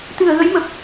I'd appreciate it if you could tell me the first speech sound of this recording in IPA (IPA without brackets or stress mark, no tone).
t̪